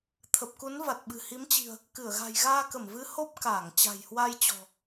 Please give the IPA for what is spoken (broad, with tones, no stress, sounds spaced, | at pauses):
t̪ʰ ə˨˩ p̚ k u˨˦ n v a˨˩ t̚ ɓ ɨ̤˨˩ h i˨˦ m t͡ɕ i̤˨˩ ə̯ | k ɨ˧˩ ə̯ ɣ a̤˨˩ j ɣ aː˧ k ə˧˩ m v ɨ˨˦ h o˦˥ p̚ k aː˧˩ ŋ t͡ɕ a̤˨˩ j h w a˧ j t͡ɕ ɔ̤˨˩